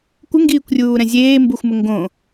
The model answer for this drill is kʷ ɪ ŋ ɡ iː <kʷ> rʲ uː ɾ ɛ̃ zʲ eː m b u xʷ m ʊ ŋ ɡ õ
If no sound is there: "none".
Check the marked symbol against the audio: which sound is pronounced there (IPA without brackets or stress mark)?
kʷ